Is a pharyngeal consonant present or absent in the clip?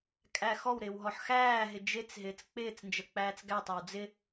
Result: present